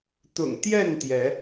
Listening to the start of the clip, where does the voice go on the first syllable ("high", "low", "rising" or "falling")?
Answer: low